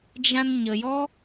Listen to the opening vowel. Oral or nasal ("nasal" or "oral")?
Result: nasal